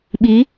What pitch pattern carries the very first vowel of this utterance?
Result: rising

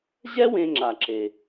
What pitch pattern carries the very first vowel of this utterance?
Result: high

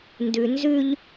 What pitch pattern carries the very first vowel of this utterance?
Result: low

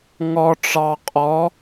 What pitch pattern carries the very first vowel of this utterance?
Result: low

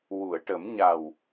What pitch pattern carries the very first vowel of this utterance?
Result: low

